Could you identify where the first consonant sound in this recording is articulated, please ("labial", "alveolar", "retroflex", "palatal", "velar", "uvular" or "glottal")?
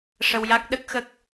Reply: retroflex